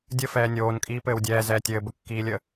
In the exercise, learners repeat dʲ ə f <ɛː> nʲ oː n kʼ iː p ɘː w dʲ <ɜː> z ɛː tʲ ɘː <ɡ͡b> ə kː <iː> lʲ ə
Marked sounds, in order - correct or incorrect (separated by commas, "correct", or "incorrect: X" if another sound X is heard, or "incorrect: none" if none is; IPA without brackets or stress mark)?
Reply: correct, incorrect: ɛː, incorrect: b, correct